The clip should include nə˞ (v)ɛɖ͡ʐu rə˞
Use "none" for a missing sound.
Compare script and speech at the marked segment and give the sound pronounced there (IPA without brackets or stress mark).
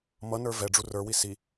v